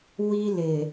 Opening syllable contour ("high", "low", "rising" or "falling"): high